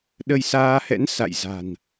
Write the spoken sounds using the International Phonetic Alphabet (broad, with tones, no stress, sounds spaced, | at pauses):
ɗ ə˧ j s aː˧ h ɛ̰˧˥ n s a̰˧˨ j z a̤˨˩ n